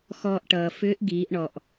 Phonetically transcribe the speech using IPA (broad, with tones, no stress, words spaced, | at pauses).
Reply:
xɔː˧ʔʈʌː˩ fʏː˧˥ʔɡiː˩˧ʔɳɔ˩ʔ